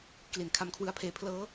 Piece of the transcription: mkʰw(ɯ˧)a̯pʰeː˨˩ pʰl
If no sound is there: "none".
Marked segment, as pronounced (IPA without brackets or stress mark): ɯ˦˥